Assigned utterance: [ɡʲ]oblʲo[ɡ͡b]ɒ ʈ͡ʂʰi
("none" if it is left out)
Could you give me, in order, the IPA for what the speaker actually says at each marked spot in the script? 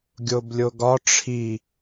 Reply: ɡʲ, ɡ

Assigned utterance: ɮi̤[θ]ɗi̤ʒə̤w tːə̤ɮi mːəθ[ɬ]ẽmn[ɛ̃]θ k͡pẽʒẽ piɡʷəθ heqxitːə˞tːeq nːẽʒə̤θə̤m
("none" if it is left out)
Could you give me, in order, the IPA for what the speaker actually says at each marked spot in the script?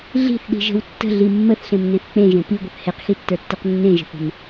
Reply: θ, ɬ, ẽ

